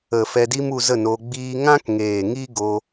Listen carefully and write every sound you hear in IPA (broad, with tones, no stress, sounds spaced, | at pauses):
ə˨ f ɛ˧ d i˦ m u˧ z ə˦˨ n o˧ ɡ͡b iː˦ ŋ ã˦ k ŋ eː˨ ŋ i˦ ɡ o˧